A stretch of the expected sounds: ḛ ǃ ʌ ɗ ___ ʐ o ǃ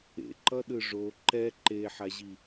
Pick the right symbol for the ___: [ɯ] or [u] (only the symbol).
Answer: ɯ